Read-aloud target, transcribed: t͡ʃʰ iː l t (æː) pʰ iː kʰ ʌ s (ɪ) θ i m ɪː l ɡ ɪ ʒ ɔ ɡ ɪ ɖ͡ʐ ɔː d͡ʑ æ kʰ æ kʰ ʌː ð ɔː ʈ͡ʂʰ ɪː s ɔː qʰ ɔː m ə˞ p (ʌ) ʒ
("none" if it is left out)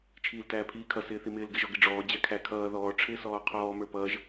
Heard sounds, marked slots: æː, ɪː, ʌː

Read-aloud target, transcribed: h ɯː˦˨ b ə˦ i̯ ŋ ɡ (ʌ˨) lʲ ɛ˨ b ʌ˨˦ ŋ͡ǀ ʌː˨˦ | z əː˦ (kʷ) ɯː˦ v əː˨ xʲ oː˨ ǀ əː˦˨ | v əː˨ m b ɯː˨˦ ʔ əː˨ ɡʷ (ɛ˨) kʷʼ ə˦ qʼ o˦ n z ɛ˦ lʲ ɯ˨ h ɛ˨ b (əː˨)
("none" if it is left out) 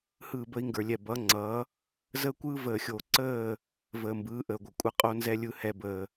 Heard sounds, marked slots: ə˞˨, kʷ, ə˨, əː˨

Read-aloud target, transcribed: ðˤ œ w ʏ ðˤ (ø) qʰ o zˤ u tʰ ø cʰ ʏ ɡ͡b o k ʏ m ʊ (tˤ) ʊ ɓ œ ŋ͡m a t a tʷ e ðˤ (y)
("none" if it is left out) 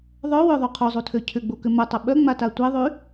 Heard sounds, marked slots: u, tˤ, y

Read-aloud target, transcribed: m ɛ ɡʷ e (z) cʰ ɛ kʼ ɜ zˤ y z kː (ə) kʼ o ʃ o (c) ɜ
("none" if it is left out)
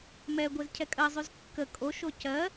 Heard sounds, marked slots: z, ə, c

